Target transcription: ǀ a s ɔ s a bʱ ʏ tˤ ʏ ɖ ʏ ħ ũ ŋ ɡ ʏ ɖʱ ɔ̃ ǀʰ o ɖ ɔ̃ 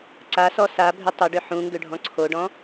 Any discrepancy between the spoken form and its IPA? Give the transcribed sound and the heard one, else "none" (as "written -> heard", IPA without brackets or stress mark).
none